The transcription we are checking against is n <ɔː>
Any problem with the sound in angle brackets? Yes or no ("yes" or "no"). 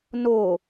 yes